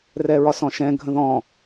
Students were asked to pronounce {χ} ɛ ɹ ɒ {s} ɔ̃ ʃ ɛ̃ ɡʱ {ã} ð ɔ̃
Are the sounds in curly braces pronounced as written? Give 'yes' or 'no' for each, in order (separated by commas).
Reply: no, yes, no